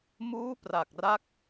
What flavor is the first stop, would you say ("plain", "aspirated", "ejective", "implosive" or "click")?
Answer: plain